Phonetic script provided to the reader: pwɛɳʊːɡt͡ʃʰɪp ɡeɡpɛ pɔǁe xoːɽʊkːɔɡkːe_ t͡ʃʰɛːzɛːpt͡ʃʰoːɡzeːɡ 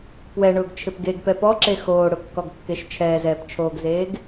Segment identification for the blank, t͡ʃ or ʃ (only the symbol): ʃ